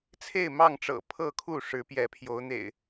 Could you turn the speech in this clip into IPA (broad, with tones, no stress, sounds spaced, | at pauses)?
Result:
t͡sʰ e˥˨ ɪ̯ m ɑ˥˨ ŋ ʈ͡ʂ ɤ̰˨˩ pʰ ɤ˥˨ kʰ u˥˨ ʂ ɻ̩˨˦ p j ɛ˨˦ pʰ j o˨˦ ʊ̯ n̪ ḛ˨˩ ɪ̯